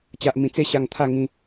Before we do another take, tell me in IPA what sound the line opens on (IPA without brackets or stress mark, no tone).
t͡ɕ